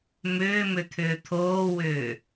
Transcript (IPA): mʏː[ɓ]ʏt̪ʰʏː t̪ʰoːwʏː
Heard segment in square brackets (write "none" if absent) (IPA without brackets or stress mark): m